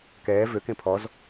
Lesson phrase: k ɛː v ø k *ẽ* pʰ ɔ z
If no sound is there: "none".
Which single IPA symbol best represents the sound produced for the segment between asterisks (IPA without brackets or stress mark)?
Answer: ẽ